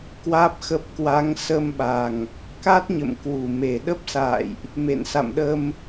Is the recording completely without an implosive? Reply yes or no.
no